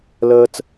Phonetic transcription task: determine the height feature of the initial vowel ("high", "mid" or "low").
mid